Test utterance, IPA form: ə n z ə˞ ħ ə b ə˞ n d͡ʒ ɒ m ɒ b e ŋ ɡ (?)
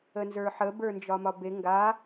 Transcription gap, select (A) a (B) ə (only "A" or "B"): A